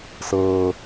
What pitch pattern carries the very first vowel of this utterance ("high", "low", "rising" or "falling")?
low